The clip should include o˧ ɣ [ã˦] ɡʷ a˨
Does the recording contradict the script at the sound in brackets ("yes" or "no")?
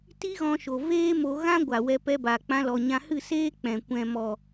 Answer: no